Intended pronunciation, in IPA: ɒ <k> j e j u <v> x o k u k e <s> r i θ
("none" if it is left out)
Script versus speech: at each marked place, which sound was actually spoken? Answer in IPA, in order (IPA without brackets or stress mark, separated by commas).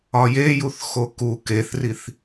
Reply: none, θ, θ